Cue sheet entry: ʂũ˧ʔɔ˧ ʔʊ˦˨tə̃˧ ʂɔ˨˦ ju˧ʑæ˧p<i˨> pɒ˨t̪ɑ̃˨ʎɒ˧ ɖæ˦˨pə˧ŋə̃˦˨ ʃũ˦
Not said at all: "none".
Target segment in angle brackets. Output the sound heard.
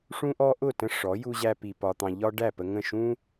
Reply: i˨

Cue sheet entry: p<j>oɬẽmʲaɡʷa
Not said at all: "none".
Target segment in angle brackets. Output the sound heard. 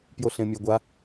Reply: j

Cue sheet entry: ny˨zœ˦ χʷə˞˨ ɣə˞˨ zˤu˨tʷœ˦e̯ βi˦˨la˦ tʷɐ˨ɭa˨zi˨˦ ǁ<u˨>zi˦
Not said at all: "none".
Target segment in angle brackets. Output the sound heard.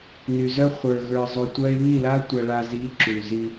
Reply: u˨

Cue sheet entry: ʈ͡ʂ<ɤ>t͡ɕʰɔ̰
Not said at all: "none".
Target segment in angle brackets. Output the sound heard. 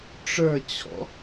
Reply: ə˞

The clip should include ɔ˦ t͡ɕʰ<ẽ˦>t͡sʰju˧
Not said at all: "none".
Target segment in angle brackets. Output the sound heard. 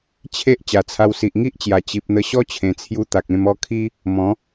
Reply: ẽ˨˩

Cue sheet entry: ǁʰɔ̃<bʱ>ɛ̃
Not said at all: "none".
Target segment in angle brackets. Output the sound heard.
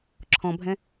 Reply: bʱ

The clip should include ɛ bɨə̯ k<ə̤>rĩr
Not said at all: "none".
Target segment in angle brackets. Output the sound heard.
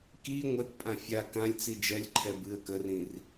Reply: ə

